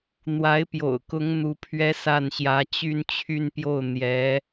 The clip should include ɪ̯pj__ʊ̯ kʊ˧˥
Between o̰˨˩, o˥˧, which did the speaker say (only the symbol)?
o̰˨˩